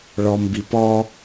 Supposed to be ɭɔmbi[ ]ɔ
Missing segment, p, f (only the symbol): p